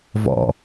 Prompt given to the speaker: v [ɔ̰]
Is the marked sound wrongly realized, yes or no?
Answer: no